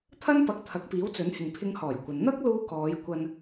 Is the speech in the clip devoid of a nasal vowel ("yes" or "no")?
yes